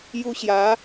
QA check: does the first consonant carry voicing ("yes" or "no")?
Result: yes